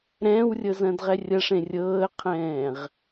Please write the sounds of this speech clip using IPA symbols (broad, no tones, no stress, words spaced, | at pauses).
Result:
ɾɛ̃ːwrʲɤzɐ̃ːdʁɛ rʲɐʂẽ rʲɤːə̯qʰɛ̃ːʁ